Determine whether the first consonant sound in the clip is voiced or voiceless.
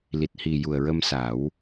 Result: voiced